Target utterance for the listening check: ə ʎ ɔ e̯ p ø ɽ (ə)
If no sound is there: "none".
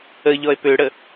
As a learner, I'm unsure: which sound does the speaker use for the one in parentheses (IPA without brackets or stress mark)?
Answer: ə